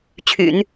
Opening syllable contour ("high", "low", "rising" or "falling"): low